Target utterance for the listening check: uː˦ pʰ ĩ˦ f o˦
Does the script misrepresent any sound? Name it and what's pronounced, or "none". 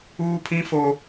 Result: none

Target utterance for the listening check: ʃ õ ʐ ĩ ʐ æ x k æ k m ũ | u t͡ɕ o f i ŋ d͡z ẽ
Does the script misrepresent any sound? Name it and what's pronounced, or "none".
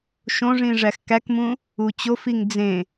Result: none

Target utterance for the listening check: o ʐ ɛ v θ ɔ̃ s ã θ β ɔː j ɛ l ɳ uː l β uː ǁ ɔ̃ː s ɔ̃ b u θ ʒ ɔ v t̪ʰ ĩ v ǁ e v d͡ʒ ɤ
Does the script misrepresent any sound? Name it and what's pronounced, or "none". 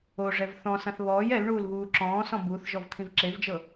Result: none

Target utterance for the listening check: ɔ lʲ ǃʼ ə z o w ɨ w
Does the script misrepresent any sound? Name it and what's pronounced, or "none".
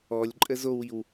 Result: ɨ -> i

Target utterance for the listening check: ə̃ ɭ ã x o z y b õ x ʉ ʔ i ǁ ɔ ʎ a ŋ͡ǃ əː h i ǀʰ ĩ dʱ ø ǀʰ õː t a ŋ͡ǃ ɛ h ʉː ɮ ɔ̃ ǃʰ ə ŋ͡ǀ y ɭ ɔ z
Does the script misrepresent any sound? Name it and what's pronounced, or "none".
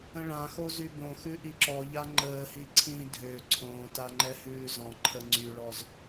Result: ɮ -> z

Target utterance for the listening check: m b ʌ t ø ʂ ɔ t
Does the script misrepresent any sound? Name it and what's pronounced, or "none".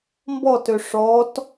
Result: ʌ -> ɔ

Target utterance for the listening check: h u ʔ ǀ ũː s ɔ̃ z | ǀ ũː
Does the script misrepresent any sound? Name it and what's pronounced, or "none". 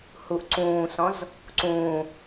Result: none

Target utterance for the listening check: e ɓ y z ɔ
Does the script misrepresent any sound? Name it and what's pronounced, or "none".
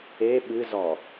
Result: y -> ɨ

